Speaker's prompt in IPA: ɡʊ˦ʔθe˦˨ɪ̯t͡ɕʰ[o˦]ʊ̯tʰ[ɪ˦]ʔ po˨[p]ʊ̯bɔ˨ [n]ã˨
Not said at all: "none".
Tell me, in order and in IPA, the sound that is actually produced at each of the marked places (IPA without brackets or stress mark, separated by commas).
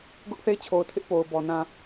o˨, ɪ˦, none, n